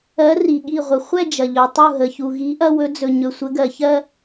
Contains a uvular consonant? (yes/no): yes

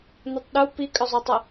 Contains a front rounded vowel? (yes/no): yes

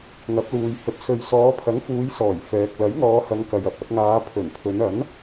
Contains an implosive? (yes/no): no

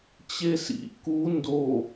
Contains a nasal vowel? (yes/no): no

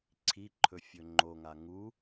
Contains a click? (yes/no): yes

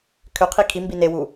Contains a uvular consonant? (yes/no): yes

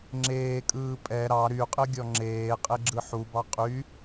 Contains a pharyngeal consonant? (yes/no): yes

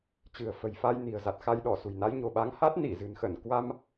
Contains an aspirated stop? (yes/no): no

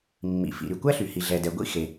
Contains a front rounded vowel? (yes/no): yes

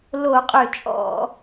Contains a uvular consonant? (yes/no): yes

